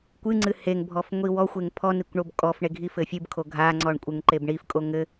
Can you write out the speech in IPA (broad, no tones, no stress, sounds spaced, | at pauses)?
kʷ ɨ ŋ͡ǀ ɨ h e ŋ bʱ ɔ f ŋʷ i w ɔ xʷ e ŋ pʰ ɔ n i kʷ ɳ o b kʼ ɔ f ɳ e ɡʱ i f ɘ fʲ ɨ b kʰ o ɡʱ a ŋ͡ǀ ɔ ɳ kʷʼ ɘ ŋ ǃ e b ɳ i f kʼ o ŋ ɘ